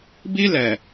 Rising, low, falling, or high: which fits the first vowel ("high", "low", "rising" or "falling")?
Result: high